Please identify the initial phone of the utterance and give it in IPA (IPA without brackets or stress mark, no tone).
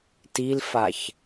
t